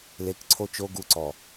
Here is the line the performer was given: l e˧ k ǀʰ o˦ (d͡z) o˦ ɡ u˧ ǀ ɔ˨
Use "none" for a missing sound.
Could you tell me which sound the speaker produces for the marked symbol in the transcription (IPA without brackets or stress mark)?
t͡ʃ